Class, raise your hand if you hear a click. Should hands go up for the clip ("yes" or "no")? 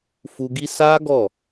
no